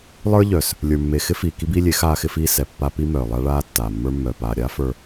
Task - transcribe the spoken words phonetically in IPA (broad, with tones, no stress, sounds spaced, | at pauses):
lˠ ə˞˦ ʎ œ˨ s | lʲ ə˞˨ mː e˨ x ɪ˦ f iː˨ k i˦ b iː˦ lʲ e˨˦ x aː˦ x ɪ˦ f iː˦ s ɛ˨ pː a˦ p i˦ m œː˨ lˠ a˦ ɭ aː˦ tː aː˨ mː ə˞˦ mː œː˨ p aː˨ ɾʲ aː˦ f ə˞˨